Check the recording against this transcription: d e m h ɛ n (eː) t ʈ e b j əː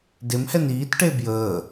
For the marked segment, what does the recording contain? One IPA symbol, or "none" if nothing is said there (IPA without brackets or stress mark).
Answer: iː